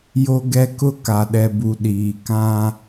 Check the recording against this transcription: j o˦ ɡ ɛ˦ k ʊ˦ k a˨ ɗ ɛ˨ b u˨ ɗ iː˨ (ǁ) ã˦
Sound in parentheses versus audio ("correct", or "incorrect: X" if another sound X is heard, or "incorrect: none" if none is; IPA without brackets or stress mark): incorrect: k